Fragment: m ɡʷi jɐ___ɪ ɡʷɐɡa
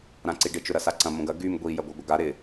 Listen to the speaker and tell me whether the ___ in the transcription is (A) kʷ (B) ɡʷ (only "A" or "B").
B